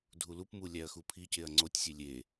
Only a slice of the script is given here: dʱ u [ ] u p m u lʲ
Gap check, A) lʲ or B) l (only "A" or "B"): B